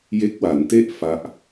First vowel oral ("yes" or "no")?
yes